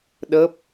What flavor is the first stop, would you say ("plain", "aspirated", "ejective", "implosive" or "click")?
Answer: implosive